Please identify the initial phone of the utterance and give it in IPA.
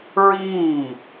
ɹ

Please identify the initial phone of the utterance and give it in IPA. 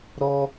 ɾ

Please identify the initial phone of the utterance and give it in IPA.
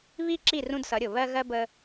β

